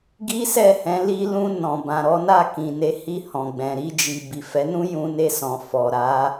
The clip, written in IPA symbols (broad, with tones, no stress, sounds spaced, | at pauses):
ɡ i˦ s ɛ˦˨ h ɛ̃˨˦ l i˧ l ũ˧ n ɔ̃˨ b ã˨ ɾ ɔ˨˦ n a˦˨ k ĩ˨ n e˨˦ h i˦˨ h ɔ̃˨ ɡ͡b ɛ̃˨ ɾ i˧ d͡ʒ i˨ b i˨ f ɛ˨˦ n ũ˦ j ũ˧ n e˧ s ɔ̃˨ f ɔ˨ ɾ a˨˦